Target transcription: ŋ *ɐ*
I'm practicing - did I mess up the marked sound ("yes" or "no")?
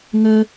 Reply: yes